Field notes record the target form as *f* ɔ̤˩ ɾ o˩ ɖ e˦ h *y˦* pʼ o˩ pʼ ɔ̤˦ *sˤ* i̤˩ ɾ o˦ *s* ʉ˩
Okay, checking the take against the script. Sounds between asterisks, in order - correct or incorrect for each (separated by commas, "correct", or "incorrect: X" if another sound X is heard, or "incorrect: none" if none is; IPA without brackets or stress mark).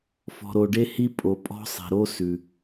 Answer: correct, incorrect: i˦, correct, correct